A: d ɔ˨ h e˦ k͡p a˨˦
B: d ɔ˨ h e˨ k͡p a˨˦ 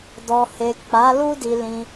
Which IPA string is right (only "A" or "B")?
B